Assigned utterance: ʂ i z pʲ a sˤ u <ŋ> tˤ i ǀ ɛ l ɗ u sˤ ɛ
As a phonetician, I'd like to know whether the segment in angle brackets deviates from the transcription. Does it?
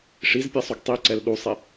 yes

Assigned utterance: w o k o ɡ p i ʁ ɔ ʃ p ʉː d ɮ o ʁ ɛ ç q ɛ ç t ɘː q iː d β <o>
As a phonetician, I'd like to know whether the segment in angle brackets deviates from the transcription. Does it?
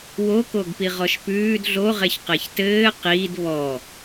yes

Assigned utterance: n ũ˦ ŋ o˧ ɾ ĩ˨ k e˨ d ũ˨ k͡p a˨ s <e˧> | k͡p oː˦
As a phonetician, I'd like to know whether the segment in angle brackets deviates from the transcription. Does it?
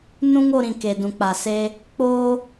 no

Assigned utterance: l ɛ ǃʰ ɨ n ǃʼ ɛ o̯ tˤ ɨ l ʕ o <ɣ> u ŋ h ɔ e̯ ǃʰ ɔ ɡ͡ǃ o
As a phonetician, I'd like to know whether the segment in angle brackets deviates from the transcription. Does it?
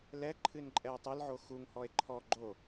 yes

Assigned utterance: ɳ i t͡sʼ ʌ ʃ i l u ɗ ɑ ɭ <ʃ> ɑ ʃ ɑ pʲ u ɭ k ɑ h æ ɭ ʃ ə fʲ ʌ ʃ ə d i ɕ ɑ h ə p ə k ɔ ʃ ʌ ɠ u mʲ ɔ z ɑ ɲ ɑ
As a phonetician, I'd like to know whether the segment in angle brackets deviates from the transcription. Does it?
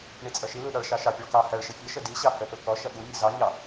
no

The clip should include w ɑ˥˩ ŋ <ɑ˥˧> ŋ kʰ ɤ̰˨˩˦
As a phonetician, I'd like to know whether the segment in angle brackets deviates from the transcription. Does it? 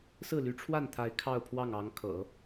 yes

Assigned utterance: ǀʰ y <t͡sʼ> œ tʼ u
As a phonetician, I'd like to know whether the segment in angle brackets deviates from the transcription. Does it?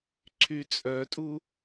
no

